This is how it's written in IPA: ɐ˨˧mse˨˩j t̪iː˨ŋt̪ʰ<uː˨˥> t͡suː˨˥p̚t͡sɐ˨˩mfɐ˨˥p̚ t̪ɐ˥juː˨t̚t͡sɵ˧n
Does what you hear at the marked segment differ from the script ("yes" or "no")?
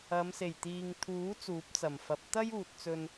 no